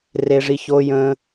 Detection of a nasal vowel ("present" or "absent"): present